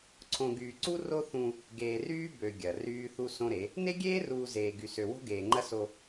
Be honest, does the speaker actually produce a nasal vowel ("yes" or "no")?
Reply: yes